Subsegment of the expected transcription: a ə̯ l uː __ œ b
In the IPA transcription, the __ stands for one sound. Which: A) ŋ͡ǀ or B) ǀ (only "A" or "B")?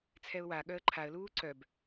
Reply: B